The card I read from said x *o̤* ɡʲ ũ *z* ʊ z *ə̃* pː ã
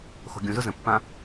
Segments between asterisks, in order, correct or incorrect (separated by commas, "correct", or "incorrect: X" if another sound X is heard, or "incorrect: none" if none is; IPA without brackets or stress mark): correct, correct, correct